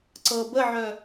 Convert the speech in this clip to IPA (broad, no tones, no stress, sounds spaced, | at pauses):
ǀ ɤ b ə ʕ œ